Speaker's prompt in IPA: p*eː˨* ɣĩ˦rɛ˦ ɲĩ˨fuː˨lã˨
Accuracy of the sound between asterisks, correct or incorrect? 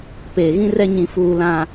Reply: correct